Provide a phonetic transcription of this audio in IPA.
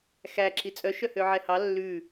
xæǁi t͡sʼœʃœhø ʕɛhɑ lːʉ

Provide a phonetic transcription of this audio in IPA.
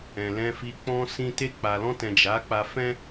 ɛ̃˨lɛ̃˧fi˧ k͡pɔ̃˧ sĩ˧te˧ k͡pa˨lɔ̃˧tɛ̃˨ d͡ʒa˨˦k͡pa˧fɛ̃˦

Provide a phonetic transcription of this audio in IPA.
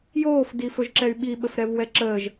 joːfdifɵʒǁɛy̯ ɓiɓəfɾɛvwɛ ǁəːʒ

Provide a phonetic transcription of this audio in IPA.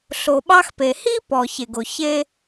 ɬo˨ɓɑ˦xpe˨ hi˦ pɔ˨çe˨ɡo˨ çe˦

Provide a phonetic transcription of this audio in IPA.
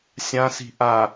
sʲãsi̤ ʔa

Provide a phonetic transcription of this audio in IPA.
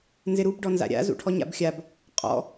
nzɪɾub ɖɔnza̰ɾʲa̰ zṵʈʰɔɲa̰bxʲab | qʼɔ̰

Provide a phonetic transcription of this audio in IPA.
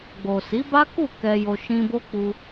ɡ͡bo˨si˨˦ba˦ku˦˨ kɛ˧jo˧ ʃĩ˧bo˦ k͡pu˧

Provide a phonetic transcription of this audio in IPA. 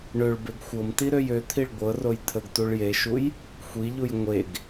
ɳøɭbeɡ xʷɤmtiɾøj øt̪ʰiɭ ɡʷɤroj t̪ʰəɡtuɭ jeʃuj | xʷiʎuj ŋʷeɡ

